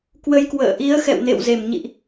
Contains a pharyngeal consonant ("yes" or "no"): no